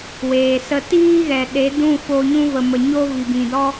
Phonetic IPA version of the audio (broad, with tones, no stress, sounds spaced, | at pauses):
w eː˨ s ə˧ t iː˦ ɣ ɛ˨ ɗ e˨˦ d ũ˦˨ f o˧ ɲ ũ˧ v ə˨ m ə˨ ɲ o˦ v i˨ b ĩ˨ d ɔ˦